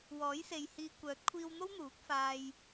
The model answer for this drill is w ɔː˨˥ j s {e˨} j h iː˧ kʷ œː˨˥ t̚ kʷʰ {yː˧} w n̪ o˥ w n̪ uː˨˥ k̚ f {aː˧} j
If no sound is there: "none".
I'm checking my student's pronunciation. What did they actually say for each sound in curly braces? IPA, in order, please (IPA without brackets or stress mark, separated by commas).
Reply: e˨, iː˧, aː˧